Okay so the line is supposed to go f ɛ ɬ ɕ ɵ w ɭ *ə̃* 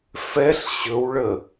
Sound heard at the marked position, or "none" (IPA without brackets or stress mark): ə